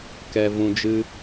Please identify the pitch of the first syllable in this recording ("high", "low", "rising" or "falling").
low